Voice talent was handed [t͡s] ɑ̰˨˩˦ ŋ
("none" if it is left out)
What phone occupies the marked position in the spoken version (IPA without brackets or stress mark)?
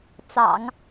t͡s